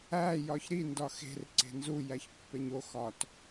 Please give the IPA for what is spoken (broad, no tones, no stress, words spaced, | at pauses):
æ jɒçɾi ndɒxe̤r ǀe̤nzu jæçpːeɲo xɒt